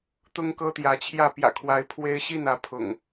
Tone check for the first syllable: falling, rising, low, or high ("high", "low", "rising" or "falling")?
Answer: high